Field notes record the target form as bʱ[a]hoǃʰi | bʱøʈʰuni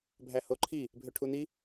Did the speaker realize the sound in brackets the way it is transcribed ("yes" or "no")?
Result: no